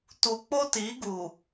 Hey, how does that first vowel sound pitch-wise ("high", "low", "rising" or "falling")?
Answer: low